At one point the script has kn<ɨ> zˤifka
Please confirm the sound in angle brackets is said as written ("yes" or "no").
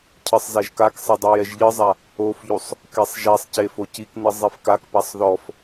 yes